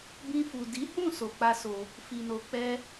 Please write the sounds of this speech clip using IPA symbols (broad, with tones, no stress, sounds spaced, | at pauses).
b ĩ˧ f u˨ d i˨˦ h ũ˦˨ s o˧ k͡p a˦ s o˧ | f i˨ n o˨ k͡p ɛ˧